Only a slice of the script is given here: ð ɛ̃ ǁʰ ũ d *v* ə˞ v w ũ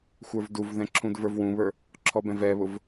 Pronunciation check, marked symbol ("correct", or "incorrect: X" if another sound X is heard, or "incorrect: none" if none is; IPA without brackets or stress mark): correct